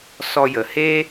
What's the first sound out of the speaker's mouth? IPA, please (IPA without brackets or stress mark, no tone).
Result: s